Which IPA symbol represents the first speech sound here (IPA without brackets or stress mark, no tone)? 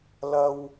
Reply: l